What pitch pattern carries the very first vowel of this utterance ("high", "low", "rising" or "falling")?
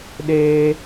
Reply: high